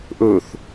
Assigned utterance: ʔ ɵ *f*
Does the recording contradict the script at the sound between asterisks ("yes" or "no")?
yes